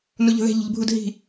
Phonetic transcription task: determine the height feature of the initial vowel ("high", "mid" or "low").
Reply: high